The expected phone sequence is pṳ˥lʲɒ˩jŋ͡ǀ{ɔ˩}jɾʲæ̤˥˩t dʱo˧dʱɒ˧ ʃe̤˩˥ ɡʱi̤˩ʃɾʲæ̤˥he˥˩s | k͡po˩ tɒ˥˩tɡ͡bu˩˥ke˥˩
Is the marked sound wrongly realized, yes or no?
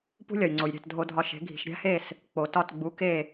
yes